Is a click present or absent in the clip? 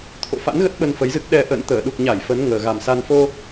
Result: absent